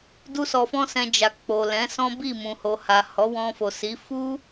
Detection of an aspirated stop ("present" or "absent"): absent